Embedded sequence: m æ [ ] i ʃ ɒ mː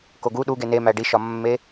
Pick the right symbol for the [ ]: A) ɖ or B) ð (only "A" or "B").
A